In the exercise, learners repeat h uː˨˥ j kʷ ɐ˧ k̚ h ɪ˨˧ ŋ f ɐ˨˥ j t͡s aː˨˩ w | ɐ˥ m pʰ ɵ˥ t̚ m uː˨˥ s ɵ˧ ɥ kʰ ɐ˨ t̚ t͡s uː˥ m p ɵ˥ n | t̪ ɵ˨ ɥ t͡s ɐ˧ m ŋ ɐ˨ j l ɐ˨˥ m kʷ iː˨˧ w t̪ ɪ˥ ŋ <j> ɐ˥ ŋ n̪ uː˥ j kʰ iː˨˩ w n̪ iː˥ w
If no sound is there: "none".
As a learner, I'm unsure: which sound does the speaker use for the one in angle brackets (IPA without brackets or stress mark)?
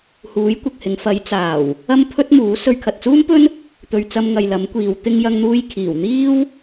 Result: j